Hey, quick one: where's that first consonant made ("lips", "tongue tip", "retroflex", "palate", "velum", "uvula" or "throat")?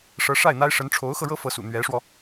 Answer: retroflex